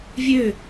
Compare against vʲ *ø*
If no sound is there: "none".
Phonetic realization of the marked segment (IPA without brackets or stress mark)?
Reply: ø